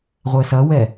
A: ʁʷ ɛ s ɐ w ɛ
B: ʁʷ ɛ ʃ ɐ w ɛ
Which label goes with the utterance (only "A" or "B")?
A